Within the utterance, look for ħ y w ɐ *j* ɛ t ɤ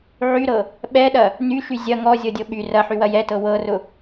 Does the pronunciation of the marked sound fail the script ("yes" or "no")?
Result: no